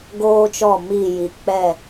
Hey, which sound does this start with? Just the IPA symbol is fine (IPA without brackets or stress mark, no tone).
ɡ